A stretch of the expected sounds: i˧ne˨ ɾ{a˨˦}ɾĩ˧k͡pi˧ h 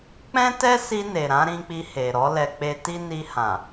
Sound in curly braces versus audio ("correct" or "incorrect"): incorrect